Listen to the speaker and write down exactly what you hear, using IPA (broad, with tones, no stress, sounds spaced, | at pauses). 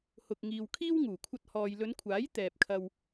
h ʊ˨ k̚ ŋ iː˨ w kʰ iː˥ w ŋ uː˨˩ kʷʰ ɐ˧ t̚ h ɔː˨ j l ɵ˨˧ n kʷʰ aː˨˥ j t̪ ɛː˨ p̚ kʰ ɐ˧ w